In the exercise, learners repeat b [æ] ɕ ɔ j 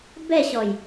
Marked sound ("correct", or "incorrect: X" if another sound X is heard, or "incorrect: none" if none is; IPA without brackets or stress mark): incorrect: ɛ